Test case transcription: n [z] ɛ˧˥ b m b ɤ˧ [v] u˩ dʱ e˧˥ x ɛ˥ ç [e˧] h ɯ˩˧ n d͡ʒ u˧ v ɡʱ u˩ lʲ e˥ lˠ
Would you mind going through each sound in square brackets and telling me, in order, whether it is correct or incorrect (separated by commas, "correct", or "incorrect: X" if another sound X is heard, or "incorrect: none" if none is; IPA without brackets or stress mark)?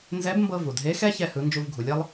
correct, correct, incorrect: ɛ˧